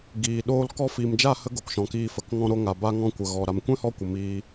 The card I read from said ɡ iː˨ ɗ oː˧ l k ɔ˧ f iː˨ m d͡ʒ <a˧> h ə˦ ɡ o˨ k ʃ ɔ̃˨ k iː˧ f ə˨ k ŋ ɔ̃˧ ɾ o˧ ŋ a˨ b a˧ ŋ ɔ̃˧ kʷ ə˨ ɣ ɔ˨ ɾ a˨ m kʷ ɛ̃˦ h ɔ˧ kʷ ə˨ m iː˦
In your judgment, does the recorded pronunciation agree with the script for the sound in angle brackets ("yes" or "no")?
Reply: no